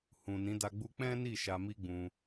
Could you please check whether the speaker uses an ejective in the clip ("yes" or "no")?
no